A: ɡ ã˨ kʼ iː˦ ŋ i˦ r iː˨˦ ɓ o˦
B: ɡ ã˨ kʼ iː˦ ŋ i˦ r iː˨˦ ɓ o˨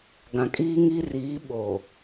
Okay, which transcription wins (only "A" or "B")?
B